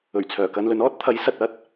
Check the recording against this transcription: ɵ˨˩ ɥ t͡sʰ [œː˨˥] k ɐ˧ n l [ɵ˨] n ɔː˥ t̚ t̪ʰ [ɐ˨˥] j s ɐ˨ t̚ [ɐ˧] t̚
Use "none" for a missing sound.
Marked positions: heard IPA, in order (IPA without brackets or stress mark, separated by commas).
œː˨˩, ɵ˨˧, ɐ˨˥, ɐ˥